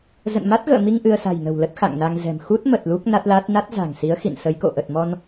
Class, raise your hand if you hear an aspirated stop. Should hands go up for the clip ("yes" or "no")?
no